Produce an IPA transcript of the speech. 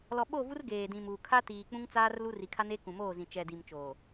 l ɔ˨ ɓ o˦˨ v u˦ r ɡ eː˨ d ĩ˨ m uː˨ kʰ a˦ t iː˨ k͡p ũ˦ ŋ t͡s aː˦ r l u˦ r i˨ kʰ a˦ n eː˦ k ũ˨ m oː˦˨ z ĩ˨ t͡ʃ ɛ˨ d i˨ m t͡ʃ oː˨

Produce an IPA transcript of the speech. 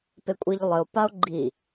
p e kʷʼ i ʎ lˠ ɘ o̯ p a o̯ ɡ͡ǃ i

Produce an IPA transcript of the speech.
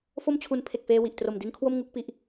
f o˥˩ m t͡ɕʰ u˧ n pʰ e˨˩ k̚ f eː˧ w i˨˩ ʔ t r o˨˩ m d i˦˥ n kʰ w o˥˩ m ŋ u˥˩ k̚ p i˦˥ ʔ

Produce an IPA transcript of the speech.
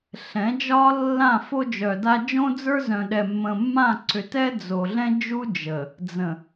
ɬ ɛ̃˨˦ d͡ʒ ɒ˦ lː ã˦˨ f o˦ d͡ʒ œ˨ d a˦ d͡ʒ õ˦ d͡z ə˞˦ z œ̃˨ ɗ ɛ˨ mː ə̃˨ mː ã˦˨ ǀ ʏ˨ t ɛ˦ d͡z o˨ ɮ ɛ̃˦ d͡ʒ u˦ d͡ʒ ə˨ | d͡z ə̃˨

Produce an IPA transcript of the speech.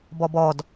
b ɔ b ɔ d

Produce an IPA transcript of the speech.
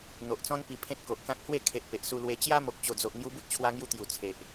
n̪ o˨ ʔ t͡s ɔ̃˦ n p i˧ pʰ ẽ˦ t̚ k o˨ ʔ k ã˦ k̚ h w e˥˧ kʰ e˨ ʔ p e˨ ʔ s u˧ l w e˧ t͡ɕ j a˦ m o˨ k̚ t͡ɕ o˨˩ d͡z o˨ ʔ ŋ j u˧ b u˦ t̚ t͡ɕʰ w a˧ ŋ j u˧ t̪ j u˨˩ t͡sʰ e˨ ʔ

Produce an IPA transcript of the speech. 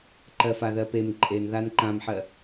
ǃ ɜ f a ð ɜ p e m ǃʼ e n ð a n ǃ ã m ħ ɜ

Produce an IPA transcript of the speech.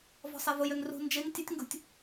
v ɔ̤ sˤ e v ʊ j ø ŋ r ṳ n d͡ʒ e ŋ tʲ ə tʲ ŋ ɡ ṳ tʲ

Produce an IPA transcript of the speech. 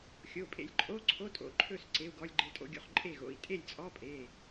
xʲ o˩˧˩ pʼ ḛ˧ lʲ ǃʼ o˧˥˧ ǀʰ o˧˥˧ tʼ o̰˩˧˩ ǃʰ ɵ˥˨ s ǀ e˧˥˧ u̯ ɡ ɔ˧˥˧ lʲ ɡ͡ǃ e˧ tʼ o̰˧ ɡʲ o̰˧ χ ǃʼ e˥˨ ɣ o̰˩˧˩ i̯ tʼ e˥˨ lʲ t͡sʼ ɔ˧˥˧ pʼ e˩˧˩

